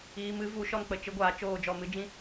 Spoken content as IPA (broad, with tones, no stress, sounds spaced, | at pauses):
iː˧ m ɨ˨˦ v u˨˦ ʃ ɔ˦ n k͡p ə˨ t͡ʃ ɨ˦ ɡʷ aː˧ t͡ʃ oː˦˨ d͡ʒ ɔ˦˨ m ɨ˦ d͡ʒ ĩ˦